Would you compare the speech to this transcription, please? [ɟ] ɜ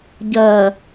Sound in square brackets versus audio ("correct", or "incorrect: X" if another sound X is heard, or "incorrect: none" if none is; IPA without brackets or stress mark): correct